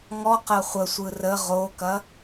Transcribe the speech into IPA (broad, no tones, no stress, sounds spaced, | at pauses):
ŋ ɔ q ɐ χʷ ə sʷ ɯ r ə ʁ o k ɐ